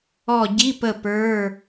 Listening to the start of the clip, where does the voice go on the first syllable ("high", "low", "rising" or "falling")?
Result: falling